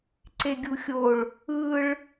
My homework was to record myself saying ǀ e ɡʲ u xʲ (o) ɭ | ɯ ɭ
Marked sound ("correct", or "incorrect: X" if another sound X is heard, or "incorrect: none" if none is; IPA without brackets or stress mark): correct